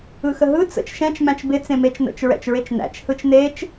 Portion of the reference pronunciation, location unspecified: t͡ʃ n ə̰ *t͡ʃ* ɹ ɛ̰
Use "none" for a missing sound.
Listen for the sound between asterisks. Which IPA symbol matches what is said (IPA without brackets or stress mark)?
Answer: t͡ʃ